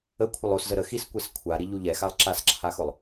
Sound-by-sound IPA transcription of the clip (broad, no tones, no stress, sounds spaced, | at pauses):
ə kʷʰ ə lˠ o s z ə ɾ ə x i s kʷ ɛ s kʷʰ a ɾ i ʎ u ʎ ɛ x a lˠ ǁ a s ǁʰ a x ʊ lˠ